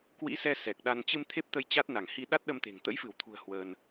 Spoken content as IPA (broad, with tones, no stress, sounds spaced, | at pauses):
k w ḭ˧˥ s ɛ˧ s ɛ˨˩ k̚ ɗ a˧ n t͡ɕ ɨ˧ m t̪ʰ e˦˥ p̚ t̪ ə˧ j t͡ɕ a˦˥ t̚ n a˧˩ ŋ h i˧ ɗ a˦˥ t̚ ɗ ə˧ m t̪ e̤˨˩ ŋ t̪ ə̰˧˥ j f ɨ˧˩ w t̪ʰ ṳ˨˩ ə̯ h w əː˧ n